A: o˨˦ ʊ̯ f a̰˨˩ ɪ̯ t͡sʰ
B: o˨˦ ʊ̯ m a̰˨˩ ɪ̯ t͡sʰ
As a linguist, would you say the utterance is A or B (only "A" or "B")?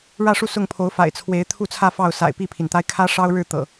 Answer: A